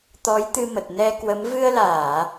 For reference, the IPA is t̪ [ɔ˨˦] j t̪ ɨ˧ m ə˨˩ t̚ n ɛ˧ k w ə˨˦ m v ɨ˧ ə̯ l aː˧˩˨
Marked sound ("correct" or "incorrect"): correct